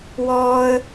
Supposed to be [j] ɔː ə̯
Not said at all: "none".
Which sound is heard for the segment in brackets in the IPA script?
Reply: w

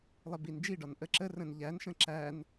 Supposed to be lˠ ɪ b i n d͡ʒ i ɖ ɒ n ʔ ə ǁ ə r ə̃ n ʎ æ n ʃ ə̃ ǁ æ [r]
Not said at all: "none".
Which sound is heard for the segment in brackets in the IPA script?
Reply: n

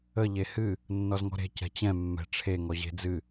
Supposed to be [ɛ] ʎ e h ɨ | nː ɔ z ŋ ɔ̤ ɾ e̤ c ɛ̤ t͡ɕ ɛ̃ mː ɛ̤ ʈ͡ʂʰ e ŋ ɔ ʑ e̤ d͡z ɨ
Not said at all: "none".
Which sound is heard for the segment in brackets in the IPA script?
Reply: ə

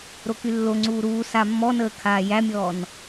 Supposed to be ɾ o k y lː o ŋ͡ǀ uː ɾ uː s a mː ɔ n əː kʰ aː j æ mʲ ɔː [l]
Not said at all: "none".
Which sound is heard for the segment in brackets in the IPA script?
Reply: n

